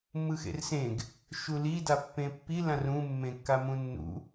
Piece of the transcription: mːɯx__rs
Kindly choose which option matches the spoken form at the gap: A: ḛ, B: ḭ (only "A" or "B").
A